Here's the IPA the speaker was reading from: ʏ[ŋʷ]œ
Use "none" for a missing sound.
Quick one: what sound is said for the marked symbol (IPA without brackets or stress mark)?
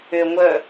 ŋʷ